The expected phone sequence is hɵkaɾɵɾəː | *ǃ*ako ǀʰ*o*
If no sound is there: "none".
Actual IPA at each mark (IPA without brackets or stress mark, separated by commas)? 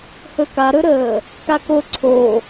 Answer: k, o